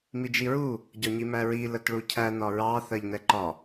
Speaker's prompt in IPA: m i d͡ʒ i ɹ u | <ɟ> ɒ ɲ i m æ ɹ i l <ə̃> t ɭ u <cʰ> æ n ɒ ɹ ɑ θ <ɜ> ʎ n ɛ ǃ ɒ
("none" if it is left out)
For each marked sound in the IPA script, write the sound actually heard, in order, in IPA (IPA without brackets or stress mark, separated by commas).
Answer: ɟ, ə, cʰ, ɜ